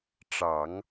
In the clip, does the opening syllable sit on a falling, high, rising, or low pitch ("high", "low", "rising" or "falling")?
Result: low